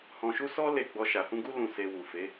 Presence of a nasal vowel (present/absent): present